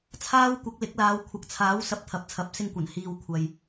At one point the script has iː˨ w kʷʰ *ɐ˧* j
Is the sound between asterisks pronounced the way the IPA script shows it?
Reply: no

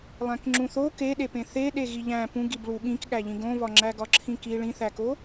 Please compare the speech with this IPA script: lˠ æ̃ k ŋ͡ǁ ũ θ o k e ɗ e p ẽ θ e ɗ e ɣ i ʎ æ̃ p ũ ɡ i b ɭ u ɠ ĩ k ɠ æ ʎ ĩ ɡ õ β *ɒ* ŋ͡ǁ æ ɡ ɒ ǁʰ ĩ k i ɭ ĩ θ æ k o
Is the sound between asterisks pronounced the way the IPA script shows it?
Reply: yes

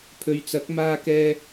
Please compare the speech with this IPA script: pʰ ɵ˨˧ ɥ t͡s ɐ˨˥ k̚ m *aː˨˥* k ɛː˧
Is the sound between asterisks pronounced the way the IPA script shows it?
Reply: no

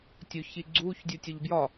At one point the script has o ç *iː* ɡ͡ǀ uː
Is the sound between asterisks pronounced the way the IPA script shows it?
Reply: no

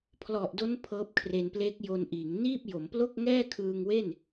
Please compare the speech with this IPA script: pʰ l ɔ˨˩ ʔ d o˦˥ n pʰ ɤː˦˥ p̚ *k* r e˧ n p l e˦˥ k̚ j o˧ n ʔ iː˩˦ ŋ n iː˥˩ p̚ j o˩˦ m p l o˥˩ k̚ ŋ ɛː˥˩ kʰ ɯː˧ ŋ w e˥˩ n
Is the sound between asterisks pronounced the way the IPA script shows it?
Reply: no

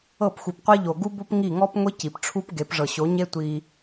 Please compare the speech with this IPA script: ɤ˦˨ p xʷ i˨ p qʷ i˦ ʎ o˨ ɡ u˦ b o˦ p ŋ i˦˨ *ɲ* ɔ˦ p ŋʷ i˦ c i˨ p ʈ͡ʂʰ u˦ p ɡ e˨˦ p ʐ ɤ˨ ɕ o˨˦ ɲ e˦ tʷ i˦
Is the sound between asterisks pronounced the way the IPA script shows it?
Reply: no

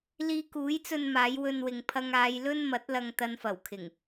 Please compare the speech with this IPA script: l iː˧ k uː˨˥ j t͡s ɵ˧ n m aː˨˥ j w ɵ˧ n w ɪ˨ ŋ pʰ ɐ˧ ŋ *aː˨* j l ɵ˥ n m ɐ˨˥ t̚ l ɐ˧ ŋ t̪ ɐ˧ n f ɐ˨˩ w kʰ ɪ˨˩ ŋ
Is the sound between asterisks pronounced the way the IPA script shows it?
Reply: no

